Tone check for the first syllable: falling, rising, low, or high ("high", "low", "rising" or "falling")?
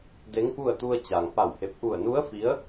rising